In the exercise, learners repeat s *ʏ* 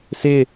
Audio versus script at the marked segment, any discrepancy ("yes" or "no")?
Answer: yes